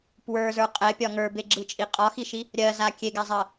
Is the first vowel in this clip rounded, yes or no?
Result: no